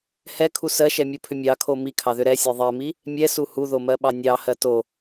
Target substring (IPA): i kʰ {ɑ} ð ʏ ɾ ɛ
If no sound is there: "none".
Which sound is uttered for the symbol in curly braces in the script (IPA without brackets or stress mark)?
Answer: ɑ